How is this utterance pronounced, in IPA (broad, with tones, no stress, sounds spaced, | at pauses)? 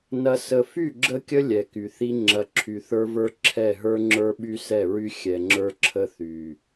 n ɐ˨ s ə˨ f y˦˨ ɡ͡ǁ ə˦ kʲ ə˦ lʲ ɛ˨ k y˨ θ i˦ ŋ͡ǁ ɐ˨˦ ǁʰ y˨ θ ə˞˦ v ə˞˦ ǁʰ ɛ˦˨ ɦ ə˞˦ ŋ͡ǁ ə˞˦ ɓ y˦ s ɛ˦˨ ɹ y˦ xʲ ɛ˨ ŋ͡ǁ ə˞˦ ǁʰ ə˦ θ y˨